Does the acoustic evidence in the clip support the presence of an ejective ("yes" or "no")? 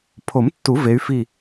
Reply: no